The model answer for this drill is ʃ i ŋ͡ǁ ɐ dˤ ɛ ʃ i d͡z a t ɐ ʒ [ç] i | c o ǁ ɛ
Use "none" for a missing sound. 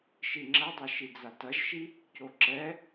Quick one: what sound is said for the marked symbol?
ʃ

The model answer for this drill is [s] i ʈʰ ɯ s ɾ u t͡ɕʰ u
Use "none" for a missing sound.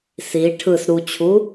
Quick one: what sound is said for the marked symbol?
s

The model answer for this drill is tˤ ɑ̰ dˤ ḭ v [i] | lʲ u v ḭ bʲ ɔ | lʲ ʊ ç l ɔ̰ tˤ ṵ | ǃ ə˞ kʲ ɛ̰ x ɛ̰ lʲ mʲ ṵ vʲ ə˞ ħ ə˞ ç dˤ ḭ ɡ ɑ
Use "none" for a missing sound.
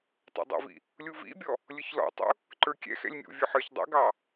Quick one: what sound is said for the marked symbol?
ḭ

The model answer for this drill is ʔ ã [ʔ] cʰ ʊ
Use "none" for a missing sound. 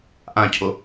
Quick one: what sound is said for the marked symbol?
none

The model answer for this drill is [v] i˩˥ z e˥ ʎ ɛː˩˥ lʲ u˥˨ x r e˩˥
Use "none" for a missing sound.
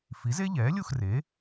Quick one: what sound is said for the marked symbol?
f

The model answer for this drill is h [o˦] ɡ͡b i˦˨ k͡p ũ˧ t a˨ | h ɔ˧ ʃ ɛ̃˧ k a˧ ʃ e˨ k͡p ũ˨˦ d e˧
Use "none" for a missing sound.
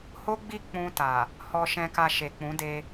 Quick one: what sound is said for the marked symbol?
o˦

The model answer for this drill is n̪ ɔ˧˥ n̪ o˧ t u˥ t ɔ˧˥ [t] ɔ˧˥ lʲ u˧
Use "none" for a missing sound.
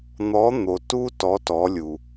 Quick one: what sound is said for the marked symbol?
t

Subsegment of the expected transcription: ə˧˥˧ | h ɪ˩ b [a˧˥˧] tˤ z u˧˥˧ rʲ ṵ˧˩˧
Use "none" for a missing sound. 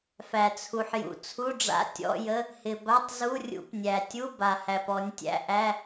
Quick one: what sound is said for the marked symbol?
a˧˥˧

